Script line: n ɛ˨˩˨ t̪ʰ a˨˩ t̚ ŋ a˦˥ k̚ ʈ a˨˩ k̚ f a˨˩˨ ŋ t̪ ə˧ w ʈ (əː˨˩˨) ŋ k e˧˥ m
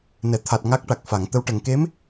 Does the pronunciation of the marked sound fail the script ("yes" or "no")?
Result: yes